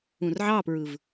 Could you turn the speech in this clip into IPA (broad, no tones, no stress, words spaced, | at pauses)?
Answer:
ũrʕɑpɹɯv